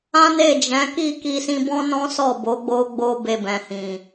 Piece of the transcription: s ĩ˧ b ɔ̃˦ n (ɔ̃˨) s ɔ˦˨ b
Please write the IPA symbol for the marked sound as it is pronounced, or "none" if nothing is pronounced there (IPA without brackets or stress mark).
ɔ̃˦